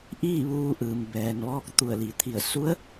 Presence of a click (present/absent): absent